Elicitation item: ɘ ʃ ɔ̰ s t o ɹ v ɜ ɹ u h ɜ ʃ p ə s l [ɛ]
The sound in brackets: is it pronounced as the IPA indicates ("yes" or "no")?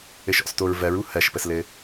no